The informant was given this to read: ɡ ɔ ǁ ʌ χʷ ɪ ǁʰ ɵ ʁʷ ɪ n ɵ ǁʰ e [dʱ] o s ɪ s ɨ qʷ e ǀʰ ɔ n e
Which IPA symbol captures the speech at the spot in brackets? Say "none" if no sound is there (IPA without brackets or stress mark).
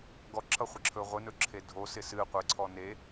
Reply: dʱ